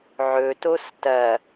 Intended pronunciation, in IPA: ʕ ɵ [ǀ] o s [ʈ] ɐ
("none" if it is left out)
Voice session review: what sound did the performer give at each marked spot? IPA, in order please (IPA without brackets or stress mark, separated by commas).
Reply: t, t